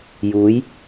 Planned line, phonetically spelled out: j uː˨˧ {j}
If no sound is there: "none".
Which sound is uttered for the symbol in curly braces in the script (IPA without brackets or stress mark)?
j